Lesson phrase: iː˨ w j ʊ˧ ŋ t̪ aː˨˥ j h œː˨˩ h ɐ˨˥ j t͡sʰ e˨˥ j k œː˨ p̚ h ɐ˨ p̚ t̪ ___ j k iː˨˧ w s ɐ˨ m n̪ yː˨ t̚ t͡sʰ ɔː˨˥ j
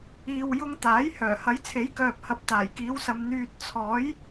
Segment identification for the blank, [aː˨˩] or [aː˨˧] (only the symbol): aː˨˩